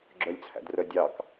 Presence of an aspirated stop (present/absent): present